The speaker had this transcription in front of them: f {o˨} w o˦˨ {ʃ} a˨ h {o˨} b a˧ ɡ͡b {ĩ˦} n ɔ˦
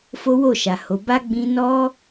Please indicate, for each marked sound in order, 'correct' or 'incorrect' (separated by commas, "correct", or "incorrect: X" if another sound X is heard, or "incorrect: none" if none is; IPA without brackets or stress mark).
incorrect: o˦, correct, correct, incorrect: ĩ˧